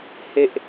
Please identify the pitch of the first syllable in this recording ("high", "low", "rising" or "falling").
high